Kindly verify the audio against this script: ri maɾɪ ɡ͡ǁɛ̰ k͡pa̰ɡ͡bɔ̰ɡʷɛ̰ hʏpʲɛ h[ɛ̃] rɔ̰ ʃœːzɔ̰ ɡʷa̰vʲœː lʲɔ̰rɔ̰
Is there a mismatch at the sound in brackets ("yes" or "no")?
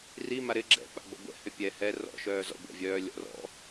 yes